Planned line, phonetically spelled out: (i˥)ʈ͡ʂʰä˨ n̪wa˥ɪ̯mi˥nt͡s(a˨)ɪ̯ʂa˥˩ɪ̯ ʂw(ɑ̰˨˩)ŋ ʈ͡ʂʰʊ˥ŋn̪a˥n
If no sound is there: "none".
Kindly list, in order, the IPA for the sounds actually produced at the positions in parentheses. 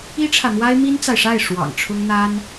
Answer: i˥, a˨, ɑ̰˨˩

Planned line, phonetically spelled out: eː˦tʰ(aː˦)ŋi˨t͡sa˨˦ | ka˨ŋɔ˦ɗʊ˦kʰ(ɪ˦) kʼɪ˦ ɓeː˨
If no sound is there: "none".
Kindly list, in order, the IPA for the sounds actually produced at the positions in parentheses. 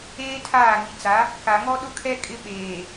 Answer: aː˦˨, ɛ˦

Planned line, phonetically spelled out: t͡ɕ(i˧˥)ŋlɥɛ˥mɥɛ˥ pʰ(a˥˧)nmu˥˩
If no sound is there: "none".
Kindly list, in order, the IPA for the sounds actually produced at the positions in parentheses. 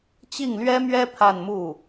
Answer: i˥˩, a˥˧

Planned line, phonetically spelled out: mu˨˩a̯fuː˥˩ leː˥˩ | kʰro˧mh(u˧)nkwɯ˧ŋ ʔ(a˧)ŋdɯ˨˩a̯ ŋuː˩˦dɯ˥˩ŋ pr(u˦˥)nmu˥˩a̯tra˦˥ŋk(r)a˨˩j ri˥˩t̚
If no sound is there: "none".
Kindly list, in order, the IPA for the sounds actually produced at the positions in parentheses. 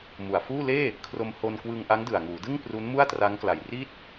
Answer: o˧, a˦˥, u˦˥, l

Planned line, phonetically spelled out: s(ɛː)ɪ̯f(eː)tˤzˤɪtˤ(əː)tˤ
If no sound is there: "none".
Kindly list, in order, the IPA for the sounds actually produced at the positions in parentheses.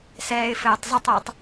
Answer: ɛː, ɘː, ɪː

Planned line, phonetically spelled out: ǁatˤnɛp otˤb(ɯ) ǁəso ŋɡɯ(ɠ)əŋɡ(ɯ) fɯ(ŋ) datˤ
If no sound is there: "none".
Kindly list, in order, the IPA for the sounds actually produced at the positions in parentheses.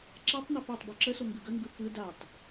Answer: ɯ, ɡ, ɯ, none

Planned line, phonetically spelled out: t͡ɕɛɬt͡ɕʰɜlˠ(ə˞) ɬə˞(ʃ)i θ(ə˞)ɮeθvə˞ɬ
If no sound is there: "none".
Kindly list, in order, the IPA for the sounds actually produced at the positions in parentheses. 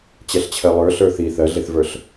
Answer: ə˞, θ, ɜ

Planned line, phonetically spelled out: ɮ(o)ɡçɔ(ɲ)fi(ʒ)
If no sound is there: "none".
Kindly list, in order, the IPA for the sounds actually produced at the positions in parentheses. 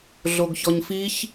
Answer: o, ɲ, ç

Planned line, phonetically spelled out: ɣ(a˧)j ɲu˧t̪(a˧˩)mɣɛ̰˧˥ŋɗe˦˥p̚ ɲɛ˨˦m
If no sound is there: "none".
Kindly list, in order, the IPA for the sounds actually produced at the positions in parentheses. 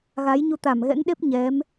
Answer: a˨˦, a˧˩

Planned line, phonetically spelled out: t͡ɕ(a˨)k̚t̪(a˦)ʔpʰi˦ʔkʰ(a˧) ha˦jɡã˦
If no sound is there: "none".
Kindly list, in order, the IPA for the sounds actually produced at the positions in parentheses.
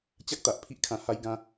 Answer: a˦, a˨, ã˧

